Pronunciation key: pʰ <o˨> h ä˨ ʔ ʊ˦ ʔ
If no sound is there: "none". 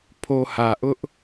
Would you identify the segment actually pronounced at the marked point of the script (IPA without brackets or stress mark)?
o˨